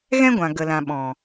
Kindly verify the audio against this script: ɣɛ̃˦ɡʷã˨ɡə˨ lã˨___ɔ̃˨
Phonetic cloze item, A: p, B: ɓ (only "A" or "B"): B